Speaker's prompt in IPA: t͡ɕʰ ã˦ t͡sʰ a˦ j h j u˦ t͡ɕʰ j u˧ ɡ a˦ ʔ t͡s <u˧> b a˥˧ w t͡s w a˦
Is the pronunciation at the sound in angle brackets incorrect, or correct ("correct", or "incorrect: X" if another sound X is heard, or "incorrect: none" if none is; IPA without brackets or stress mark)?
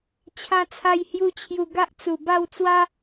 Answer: incorrect: u˨˩